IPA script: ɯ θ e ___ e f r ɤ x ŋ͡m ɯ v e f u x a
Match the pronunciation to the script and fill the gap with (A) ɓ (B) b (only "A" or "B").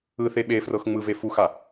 A